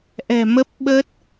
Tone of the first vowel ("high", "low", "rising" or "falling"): low